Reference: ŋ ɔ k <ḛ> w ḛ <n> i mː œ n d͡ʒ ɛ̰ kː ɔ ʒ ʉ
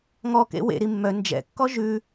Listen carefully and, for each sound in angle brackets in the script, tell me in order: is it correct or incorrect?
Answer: correct, incorrect: ɾ

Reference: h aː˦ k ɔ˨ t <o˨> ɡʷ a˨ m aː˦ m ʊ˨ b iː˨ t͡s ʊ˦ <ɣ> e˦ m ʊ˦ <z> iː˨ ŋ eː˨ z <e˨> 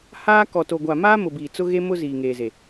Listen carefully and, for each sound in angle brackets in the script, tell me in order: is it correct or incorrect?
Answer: correct, correct, correct, correct

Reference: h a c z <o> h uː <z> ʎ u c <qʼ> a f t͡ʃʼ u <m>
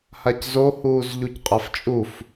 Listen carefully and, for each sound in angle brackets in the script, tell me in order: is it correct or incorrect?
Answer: correct, correct, correct, incorrect: f

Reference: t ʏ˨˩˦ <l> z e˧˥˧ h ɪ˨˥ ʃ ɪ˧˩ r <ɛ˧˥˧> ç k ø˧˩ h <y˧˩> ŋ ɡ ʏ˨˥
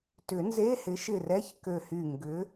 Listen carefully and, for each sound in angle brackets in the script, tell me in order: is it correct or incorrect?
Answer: incorrect: n, correct, correct

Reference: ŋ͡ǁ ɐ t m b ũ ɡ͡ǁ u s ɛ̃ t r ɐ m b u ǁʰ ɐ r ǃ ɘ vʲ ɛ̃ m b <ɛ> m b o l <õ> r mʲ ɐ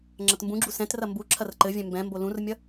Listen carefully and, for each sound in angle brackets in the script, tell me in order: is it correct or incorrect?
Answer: incorrect: ɛ̃, incorrect: ũ

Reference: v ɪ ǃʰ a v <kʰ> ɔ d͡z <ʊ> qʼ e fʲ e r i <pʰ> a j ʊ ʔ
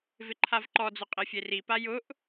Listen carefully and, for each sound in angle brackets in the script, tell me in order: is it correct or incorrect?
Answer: incorrect: ǃ, correct, incorrect: p

